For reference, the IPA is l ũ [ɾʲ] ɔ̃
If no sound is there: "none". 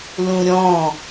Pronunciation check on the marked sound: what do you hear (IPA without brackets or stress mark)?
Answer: ɾʲ